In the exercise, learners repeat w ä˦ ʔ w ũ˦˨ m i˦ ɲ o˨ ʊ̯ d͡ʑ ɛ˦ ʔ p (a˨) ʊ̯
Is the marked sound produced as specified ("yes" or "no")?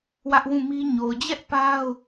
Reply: no